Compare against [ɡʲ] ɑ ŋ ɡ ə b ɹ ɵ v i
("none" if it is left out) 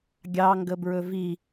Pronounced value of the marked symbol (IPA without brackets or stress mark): ɡʲ